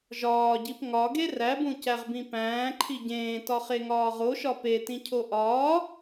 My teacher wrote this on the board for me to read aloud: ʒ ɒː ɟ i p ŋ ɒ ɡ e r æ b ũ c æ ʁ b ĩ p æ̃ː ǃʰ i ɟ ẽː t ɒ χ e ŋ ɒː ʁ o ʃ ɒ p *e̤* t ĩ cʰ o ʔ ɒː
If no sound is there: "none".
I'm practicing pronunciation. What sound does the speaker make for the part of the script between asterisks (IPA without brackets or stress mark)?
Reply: e